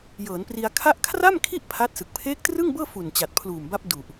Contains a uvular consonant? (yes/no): no